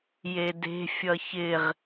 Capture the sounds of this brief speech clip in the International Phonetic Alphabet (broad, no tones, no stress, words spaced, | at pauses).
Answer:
jede̤ fʲʌçɪʁ